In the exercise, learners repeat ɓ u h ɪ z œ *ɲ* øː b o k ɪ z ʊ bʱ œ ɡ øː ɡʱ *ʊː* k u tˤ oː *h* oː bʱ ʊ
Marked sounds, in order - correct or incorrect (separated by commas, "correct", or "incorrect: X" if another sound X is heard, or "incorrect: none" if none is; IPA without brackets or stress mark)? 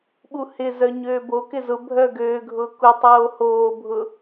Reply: correct, correct, correct